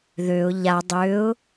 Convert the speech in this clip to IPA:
ðøʊ̯ ʎa dˤøʊ̯

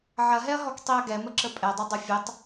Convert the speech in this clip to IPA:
ʕɐɦɛɐ̯ɦɔk tˤiɐ̯ɡɛmə ǁəpʼɛdˤʌ dˤɐfʲətˤ

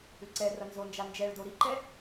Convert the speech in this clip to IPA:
ʏǀɛrɐ nzond͡ʒa nd͡ʒɛɭdo ɾiǃɛ

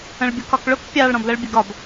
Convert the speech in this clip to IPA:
ə̃ɭbʲʊkɒkɭʊk pʲɑɭ ɾɔ̃blɜɭbʲəɡɒb

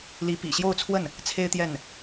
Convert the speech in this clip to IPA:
li˧˥pḭ˨˩ɕjo˥˧ʊ̯t͡sʰwə˥˩n | t͡sʰe˥ɪ̯t̪jɛ˥˩n

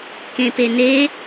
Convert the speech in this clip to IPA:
kẽpene

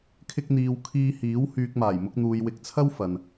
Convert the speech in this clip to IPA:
kʰɪ˧k̚n̪iː˨w kʰiː˧hiː˨˥w hyː˨k̚maː˨˩jmʊ˧k̚n̪uː˨j wɪ˨˥k̚t͡sʰɐ˥w fɐ˨n

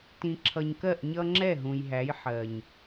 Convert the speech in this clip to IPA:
tĩ˨ǁʰʌ˨ɲkɜ˦˨ʔ ɲʌ˦ŋ͡ǁɛ˦˨ɦũ˨jɦæ˨˦j ħɜ˨ɲ

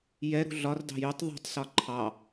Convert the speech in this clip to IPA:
jɛɾṳ ɮɒrdɑ̤ jytˤ ðˤṳtˤsɒ ǃʰɑ

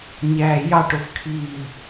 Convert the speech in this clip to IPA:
ɲæːjɑʈ ofkʰiː

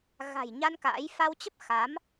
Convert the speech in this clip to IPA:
ɣa̤˨˩jɲa˧n ka̰ː˧˥j fa˧wt͡ɕə˦˥p̚ xa˨˦m

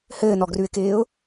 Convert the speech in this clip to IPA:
hɘːnɔɡrʉɪ̯kɪːʊ̯

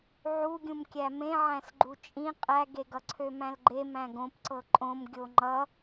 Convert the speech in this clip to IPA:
ʕuɡʲũm kʲæmẽ ʕæ̃sɡ͡ǃut͡ʃʼĩ qʼæɡeɡʌ ǀʰømæ̃lɡ͡ǃe mæ̃ɡõpǀɤ ǃʼõm ɡʲoŋ͡ǃʌ

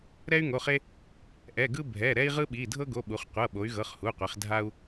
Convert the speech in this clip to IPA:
ɾɛ˦y̯ŋo˩˧˩χe˦ | ʔɛ˩˧˩ɡɯ˦ bʱɛ˩˧˩ ɾɛ˦i̯ʁɯ˦ɓi˩˧˩ dʱɤ˦ɡo˩˧˩ɓu˩˧χqʷɤ˩˧˩ ɓo˩˧y̯ɣɤ˩˧˩χ hu˩˧˩qʷi˩˧χ dʱa˦u̯

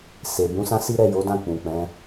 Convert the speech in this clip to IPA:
se˨ bũ˨˦sã˦si˦ ɾɛ˦˨jo˨˦dã˦˨ k͡pũ˨k͡pɛ̃˨˦

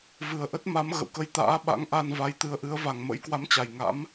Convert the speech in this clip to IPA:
vɨ˨˩ə̯ʔə˦˥t̚ ma˨˦mɣə̰˧˨wkə˧j t̪a̰ː˧˥ɓa̰˧˥ŋʔa˧nva˨˦j t̪ɨ˨˦ə̯ʔɨ˨˦ə̯ va˨˩ŋmə̰˧˥jkwa˨˦mt͡ɕa˨˩j ŋa̰˧˥m

